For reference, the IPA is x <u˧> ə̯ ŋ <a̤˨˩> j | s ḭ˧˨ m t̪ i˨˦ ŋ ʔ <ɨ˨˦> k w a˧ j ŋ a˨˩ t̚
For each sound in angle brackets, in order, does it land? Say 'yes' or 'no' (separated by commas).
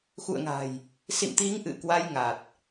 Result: no, yes, no